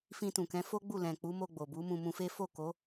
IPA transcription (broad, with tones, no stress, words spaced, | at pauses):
fĩ˧tũ˨kɛ̃˨˦fo˦ ɡ͡bu˦˨ lɛ̃˨k͡pu˨˦mo˧ ɡ͡bo˨bu˨˦mũ˧ mũ˧fe˦ fo˦˨ko˨˦